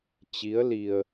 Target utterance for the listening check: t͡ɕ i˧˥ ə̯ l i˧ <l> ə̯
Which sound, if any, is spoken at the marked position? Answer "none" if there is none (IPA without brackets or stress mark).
none